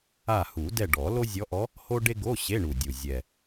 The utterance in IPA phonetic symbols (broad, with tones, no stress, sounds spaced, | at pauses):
a˦˨ h u˨˩˦ d ɛ˦˨ ɖ ɔ˨˩˦ l o˥ zʲ ɔ˧˥ ʔ ɔ˧˥ | h o˥ ɖ e˥ ɡ o˧˥˧ ɕ e˧˥˧ ɳ u˨˩ dʲ u˨˩ zʲ ɛ˨˩